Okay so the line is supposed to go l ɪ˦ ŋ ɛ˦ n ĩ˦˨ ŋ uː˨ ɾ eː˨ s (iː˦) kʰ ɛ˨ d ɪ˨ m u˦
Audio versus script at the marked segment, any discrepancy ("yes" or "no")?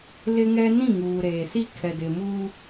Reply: yes